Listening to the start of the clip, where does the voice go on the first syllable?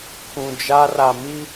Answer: low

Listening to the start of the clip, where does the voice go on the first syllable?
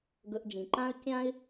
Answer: low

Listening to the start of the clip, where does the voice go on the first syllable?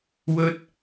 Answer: high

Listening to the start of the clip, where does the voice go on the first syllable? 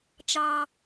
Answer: high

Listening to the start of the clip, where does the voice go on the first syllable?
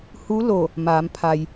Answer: rising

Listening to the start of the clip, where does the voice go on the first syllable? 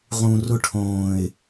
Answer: low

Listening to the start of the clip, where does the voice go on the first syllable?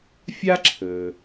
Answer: high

